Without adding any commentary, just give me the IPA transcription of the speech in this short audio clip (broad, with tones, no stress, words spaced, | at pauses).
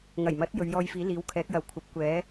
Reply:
ŋɐ˨˩jmɐ˨˥t̚ jɵ˨˧ɥjɔː˧jfiː˨˥ liː˨˥wkʰɛː˨˥k̚jɐ˨w kʷʰɐ˨˥p̚kʷɛː˨˥